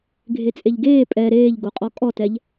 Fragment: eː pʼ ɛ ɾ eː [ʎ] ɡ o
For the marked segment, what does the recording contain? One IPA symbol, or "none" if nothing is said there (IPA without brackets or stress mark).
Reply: ʎ